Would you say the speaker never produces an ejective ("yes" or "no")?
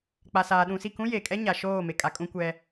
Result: no